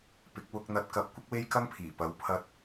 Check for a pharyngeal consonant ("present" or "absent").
absent